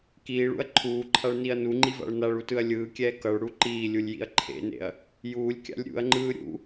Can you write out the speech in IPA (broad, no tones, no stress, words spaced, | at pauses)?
kiːɭṵɐ̯ ǃʰuːǃʰaɭniɐ̯ nuŋ͡ǃiva̰ɭ naɭutɯɐ̯ lʲɯːkʲɛː kʌɭɽu ǃiːlʲulʲjḭɐ̯ ǃʰḛnḛɐ̯ | juːlʲkʲa̰lʲ ɾʲṵɐ̯ŋ͡ǃɯː ɾʲṵ